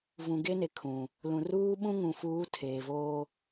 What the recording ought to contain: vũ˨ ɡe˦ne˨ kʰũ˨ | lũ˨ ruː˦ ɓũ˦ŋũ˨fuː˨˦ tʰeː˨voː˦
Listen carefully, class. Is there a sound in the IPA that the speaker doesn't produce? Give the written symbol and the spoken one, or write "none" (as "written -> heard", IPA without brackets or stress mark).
none